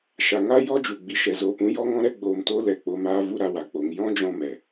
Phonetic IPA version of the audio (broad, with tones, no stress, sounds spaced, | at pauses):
ʃ a˨ ŋ a˦ j ɔ˦ d͡ʒ u˨ ɡ͡b i˧ ʃ ɛ˨ z oː˧ p ũ˨˦ j ɔ˦ ŋ ɔ̃˦ ɾ ɛ˦ ɡ͡b oː˧ m t o˦ l ɛ˧ k͡p o˧ m aː˦ v u˦ ɾ a˧ w a˨ k͡p o˨ ŋ j ɔ̃˦ d͡ʒ ɔ̃˧ m ɛ˨